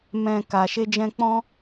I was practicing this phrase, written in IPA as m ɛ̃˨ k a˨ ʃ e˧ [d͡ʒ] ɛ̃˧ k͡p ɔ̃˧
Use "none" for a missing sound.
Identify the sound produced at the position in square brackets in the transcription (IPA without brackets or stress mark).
d͡ʒ